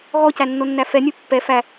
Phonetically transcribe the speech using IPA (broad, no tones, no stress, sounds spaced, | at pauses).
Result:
ɣ ɔ c æ nː o nː æ f ɛ nʲ u pː ɛ f æ